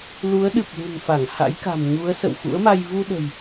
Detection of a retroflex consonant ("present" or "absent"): absent